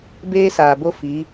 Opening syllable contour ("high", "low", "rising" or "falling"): high